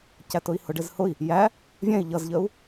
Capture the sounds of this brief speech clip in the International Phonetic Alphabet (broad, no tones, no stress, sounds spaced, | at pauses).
c æ t ʊ i̯ h ʊ ɖ ɪ z h ʊ i̯ | j æ | vʲ ɛ̃ i̯ ʎ ʌ z ʎ ə u̯